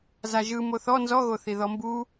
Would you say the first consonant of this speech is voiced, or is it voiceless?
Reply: voiced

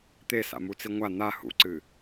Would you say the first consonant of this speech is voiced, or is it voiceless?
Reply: voiceless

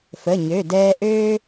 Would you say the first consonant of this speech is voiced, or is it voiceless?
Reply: voiceless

